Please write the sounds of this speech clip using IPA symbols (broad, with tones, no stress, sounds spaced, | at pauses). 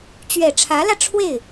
t͡ɕ ɥ ɛ˨˩ ʈ͡ʂʰ ä˧˥ l ä˧ ʈ͡ʂʰ w e˥˩ ɪ̯